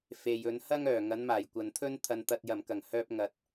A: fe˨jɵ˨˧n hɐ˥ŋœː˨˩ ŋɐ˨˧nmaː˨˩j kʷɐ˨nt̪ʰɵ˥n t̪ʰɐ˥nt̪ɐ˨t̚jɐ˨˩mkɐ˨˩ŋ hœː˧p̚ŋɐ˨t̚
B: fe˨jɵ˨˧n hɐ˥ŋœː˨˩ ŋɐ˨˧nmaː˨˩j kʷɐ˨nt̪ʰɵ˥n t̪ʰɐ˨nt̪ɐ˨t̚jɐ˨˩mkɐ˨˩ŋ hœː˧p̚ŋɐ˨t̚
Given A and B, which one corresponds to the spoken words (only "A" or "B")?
B